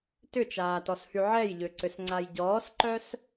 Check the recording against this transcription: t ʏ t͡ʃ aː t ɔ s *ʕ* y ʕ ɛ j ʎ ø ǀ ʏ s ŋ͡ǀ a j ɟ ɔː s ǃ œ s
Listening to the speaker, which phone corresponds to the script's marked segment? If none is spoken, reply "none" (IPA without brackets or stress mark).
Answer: h